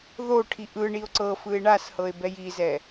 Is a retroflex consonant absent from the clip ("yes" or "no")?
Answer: no